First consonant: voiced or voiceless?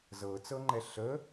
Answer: voiced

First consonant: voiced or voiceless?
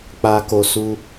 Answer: voiceless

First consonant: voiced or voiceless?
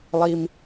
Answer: voiced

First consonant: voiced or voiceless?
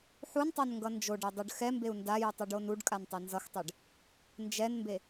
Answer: voiceless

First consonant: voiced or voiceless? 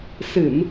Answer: voiceless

